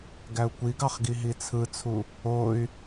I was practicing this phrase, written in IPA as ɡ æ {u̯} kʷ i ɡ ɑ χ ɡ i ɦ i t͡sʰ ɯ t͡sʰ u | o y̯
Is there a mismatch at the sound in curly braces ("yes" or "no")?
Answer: no